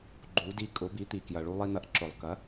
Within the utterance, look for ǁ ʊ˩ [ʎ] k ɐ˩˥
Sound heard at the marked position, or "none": lˠ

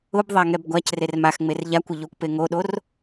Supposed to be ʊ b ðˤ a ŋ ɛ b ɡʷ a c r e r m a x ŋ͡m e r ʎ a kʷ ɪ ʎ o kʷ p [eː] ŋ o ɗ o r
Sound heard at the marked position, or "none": e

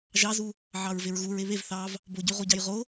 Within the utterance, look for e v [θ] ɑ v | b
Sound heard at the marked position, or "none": θ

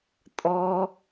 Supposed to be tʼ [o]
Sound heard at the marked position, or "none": ɔ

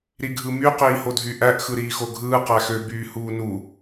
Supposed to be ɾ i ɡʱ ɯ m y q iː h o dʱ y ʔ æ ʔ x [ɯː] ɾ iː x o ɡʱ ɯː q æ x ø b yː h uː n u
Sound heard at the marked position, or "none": ɯ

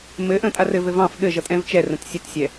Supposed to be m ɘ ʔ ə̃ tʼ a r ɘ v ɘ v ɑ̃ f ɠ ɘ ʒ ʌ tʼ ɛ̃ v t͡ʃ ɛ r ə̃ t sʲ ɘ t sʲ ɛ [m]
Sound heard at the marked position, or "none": none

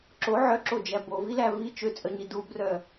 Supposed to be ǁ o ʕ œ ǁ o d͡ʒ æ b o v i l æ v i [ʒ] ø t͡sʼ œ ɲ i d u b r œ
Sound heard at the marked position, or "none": t͡ʃ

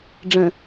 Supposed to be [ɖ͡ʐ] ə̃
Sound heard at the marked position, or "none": ɖ͡ʐ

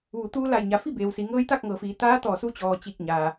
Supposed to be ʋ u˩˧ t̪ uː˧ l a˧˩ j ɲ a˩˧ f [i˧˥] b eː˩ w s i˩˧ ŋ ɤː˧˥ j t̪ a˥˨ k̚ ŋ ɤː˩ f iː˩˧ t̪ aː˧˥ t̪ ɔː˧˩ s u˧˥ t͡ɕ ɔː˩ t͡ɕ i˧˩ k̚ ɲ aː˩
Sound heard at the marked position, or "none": i˥˨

